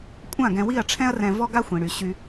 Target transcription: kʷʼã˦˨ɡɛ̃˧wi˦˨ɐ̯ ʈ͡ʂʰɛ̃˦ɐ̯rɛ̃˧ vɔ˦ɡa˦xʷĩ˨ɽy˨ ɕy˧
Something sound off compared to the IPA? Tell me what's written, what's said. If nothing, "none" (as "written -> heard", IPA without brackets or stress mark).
none